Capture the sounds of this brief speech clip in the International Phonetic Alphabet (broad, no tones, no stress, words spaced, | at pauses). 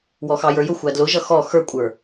wɔxɑjə˞jʊ xʷædlʊʒʌ xɔ xə˞kʷʼə˞